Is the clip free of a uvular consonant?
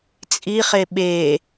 no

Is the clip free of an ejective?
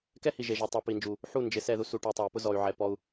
yes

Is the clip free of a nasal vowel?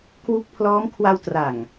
yes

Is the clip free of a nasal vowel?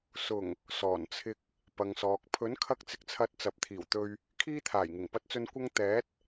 yes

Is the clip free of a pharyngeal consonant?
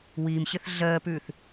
yes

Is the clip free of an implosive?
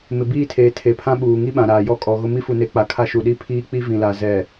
no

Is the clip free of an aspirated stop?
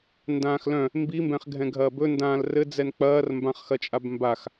yes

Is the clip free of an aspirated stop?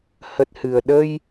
yes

